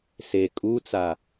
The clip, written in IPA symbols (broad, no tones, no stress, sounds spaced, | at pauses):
s e kʼ u t͡s a